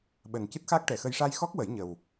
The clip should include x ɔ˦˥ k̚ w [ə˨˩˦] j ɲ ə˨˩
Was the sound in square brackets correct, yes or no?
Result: yes